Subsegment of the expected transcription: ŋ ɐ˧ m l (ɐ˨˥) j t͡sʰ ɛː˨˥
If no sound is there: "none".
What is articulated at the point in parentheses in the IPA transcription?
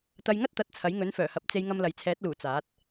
ɐ˨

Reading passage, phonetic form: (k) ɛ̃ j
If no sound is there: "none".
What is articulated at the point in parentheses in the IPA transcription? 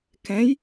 k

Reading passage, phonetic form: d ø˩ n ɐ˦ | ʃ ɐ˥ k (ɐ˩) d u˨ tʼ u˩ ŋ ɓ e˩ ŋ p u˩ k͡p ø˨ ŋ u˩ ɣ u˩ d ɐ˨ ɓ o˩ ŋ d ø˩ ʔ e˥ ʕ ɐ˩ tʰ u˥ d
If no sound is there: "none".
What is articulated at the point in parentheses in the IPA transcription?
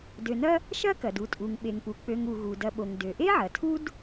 ɐ˩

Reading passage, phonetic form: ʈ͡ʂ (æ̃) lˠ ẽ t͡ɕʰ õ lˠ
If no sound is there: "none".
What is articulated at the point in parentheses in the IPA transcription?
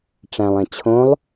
æ̃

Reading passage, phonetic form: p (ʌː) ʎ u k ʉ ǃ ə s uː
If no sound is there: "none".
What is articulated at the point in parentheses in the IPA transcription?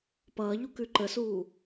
ʌː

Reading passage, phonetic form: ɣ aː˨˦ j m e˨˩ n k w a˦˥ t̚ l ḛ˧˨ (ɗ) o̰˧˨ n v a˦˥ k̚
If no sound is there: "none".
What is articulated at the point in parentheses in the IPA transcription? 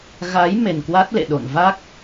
ɗ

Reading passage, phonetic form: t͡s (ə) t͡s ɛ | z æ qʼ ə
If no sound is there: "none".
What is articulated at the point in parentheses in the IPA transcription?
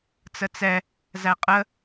ə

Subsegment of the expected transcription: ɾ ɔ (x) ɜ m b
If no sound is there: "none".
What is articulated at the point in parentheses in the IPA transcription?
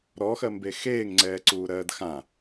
x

